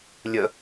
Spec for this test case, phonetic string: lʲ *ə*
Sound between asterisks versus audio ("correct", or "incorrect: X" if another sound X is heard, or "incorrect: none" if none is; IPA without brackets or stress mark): correct